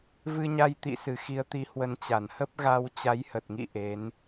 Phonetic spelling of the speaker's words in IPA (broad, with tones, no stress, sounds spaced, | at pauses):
v ɨ˧ ɲ a˧ j t̪ ḭ˧˨ s ɨ˨˩ x i˨˦ ə̯ t̪ i˨˦ h w ə˨˦ n t͡ɕ a˧˩ n h ə˦˥ p̚ ɣ a˧ w t͡ɕ a˨˦ j h ə˨˩ t̚ ŋ ḭ˧˨ ʔ e˨˦ n